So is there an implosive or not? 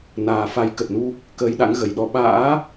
yes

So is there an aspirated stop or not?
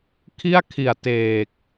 yes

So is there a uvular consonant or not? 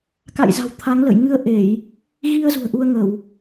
no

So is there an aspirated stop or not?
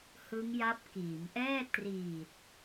no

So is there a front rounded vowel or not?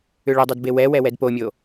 yes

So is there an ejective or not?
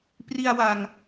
no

